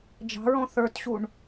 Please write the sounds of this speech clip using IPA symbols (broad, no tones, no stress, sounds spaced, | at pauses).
d͡ʒ ɑ̤ ɹ ɔ̃ θ ə˞ t ɕ u ɳ